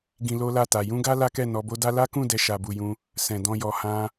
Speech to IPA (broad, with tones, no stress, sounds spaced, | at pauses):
ɡ ĩ˧ l o˦ l a˦˨ t a˨ j ũ˧ ɡ a˦ l a˦ k ɛ˦˨ n ɔ˨˦ b o˦ d a˦ l a˦ k ũ˦˨ d ɛ˧ ʃ a˨ b u˨ j ũ˧ | s ɛ̃˨ d ɔ̃˧ j ɔ˧ h ã˧